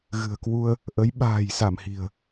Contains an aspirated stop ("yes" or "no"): no